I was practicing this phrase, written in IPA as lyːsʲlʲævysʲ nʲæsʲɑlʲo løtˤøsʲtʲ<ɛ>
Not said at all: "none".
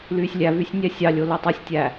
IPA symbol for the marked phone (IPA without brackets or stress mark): æ